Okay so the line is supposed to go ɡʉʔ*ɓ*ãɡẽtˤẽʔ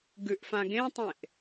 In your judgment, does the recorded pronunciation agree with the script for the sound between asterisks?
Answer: no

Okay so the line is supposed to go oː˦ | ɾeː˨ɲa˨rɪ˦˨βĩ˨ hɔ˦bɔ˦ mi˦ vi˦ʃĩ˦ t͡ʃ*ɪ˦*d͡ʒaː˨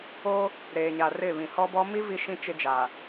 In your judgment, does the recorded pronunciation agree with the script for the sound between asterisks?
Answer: yes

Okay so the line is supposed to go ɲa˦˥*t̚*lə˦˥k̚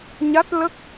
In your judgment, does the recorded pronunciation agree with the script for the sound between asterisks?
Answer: yes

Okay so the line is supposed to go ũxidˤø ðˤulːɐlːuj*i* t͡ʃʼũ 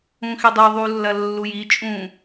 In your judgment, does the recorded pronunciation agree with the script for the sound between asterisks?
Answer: yes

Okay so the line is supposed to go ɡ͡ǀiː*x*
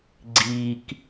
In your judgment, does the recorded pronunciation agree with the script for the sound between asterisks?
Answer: no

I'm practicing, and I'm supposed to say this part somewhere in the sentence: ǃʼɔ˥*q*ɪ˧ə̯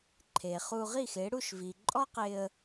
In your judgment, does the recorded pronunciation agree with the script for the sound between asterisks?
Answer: yes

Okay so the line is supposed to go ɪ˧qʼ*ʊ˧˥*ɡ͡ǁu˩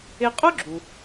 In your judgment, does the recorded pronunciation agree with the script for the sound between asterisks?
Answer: no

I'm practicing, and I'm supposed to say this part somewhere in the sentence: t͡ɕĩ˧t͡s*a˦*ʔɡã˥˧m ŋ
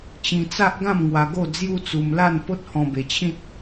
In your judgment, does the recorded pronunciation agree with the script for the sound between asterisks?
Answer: yes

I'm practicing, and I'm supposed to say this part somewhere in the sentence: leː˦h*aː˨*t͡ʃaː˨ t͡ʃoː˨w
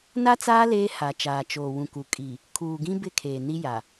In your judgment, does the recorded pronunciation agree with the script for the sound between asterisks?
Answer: no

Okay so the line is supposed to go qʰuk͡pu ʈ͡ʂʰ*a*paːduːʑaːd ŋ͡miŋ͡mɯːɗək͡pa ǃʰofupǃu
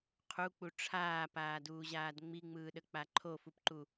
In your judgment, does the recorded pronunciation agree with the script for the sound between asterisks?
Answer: no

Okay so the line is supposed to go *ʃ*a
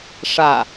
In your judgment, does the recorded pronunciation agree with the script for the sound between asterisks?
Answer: no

